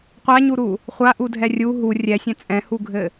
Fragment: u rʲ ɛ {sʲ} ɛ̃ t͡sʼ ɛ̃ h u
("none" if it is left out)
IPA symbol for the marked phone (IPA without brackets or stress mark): sʲ